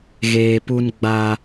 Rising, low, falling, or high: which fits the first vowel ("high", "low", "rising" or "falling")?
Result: low